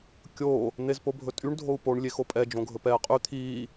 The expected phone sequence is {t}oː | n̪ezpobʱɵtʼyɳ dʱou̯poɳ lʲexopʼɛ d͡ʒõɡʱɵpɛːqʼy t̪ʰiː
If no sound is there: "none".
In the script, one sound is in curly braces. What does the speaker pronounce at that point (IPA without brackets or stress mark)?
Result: kʲ